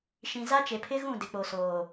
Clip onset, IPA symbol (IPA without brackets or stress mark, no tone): ʃ